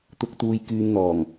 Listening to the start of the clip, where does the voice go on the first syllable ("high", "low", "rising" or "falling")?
low